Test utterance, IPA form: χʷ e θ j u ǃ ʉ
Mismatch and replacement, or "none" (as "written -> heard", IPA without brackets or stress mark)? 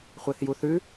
ǃ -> θ